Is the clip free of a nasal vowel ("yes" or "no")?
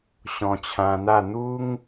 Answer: no